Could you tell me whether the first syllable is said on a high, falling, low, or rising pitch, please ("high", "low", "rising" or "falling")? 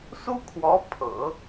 high